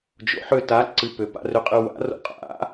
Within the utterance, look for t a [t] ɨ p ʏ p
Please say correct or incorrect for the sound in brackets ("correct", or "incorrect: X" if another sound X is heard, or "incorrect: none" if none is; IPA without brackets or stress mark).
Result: incorrect: ǀ